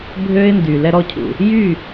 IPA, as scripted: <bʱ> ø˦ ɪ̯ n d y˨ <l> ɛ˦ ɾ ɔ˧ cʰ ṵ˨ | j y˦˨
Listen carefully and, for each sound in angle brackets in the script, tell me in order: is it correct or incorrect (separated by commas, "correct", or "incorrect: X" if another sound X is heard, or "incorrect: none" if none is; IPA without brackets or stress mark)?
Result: correct, correct